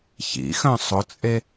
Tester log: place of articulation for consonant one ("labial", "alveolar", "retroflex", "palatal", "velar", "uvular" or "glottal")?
palatal